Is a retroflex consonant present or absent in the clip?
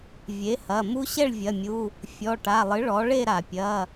present